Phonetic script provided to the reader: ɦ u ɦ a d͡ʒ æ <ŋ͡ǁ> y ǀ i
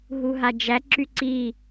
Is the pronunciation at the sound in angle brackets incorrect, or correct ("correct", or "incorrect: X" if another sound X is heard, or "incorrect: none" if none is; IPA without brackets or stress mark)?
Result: incorrect: ǁ